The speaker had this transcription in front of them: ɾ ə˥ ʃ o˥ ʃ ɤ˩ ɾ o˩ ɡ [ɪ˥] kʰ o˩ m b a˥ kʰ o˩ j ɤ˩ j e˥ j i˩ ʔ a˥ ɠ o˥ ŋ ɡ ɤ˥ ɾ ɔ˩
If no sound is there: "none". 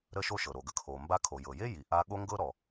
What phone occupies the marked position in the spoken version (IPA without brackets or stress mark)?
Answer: ə˥